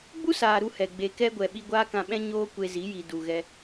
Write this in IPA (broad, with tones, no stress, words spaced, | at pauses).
ɡ͡bu˦saː˨ ɾu˧hɛ˨ ɡ͡be˨kɛ˧ɡʷɛ˨ ɓi˧ɡʷaː˦kã˧ɓɛ̃˦ ɲoː˦kʷe˧zi˨˦ ji˨du˨ ɣɛ˦